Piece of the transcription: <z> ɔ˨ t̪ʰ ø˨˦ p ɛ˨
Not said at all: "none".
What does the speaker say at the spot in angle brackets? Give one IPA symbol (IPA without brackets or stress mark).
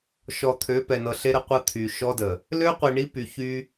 ʃ